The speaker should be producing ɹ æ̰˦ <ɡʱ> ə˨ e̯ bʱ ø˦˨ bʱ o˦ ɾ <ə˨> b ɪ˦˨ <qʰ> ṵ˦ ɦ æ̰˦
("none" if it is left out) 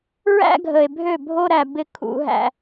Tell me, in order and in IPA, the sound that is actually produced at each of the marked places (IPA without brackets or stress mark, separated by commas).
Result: ɡʱ, æ˨, kʰ